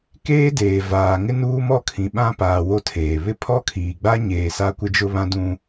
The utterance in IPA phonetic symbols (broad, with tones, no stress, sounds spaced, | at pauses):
k eː˦ d eː˨ v aː˨ ŋ ɪ˦ n uː˦ m ɔ˦˨ kʰ ĩ˨ ɓ ã˦ p aː˨ w o˦ tʰ eː˨ β ɪ˦ pʰ ɔ˦ kʰ iː˨ ɡ͡b a˦ ɲ eː˨ s a˦ kʷ ɪ˦ d͡ʒ ʊ˦ β ã˦ d ũ˦